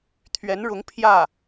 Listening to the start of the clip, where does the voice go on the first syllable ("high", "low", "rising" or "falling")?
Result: rising